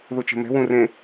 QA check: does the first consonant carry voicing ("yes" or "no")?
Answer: yes